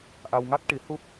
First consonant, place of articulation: glottal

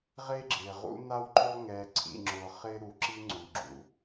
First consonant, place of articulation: uvular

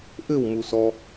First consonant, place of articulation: glottal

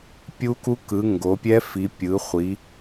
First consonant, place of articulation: labial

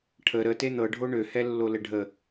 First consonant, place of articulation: retroflex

